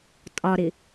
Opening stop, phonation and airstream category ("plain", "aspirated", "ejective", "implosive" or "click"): ejective